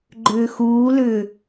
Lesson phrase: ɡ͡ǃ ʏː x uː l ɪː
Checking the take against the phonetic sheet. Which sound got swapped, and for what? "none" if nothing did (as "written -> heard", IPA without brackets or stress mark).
ɪː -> ʏː